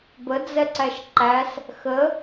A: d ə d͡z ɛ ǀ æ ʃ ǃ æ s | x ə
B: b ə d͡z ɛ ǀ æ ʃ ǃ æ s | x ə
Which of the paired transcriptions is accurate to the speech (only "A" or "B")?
B